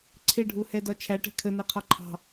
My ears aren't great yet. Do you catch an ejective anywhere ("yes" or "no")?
no